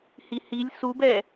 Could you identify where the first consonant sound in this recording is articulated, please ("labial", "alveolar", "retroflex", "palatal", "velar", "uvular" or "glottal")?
glottal